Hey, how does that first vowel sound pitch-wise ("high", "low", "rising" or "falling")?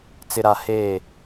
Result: low